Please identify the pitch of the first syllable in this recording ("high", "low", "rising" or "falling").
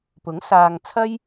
rising